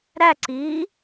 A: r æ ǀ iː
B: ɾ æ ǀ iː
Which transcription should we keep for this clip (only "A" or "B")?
B